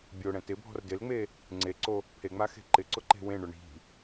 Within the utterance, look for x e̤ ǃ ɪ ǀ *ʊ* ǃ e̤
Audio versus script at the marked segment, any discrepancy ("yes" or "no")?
no